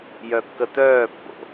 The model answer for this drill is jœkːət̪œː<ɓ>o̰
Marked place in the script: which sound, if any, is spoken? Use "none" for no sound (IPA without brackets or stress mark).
pː